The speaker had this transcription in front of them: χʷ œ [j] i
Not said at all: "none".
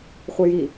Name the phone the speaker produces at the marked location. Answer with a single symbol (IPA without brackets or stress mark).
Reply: j